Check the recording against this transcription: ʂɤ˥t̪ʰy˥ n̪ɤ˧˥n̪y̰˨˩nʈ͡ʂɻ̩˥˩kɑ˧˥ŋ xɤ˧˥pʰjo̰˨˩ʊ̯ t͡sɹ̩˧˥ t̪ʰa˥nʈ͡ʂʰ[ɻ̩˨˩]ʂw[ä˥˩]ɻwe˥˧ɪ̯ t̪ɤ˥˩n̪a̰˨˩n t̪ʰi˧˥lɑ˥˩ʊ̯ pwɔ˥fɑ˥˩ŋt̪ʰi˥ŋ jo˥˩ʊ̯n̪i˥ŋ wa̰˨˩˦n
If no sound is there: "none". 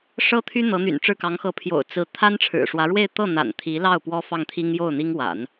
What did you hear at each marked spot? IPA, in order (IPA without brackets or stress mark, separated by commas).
ɻ̩˨˩, ä˧˥